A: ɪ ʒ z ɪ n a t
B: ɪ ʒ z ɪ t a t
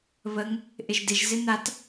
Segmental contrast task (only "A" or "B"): A